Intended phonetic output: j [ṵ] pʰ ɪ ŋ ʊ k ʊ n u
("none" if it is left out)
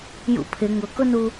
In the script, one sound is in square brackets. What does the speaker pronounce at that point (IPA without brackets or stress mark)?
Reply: ṵ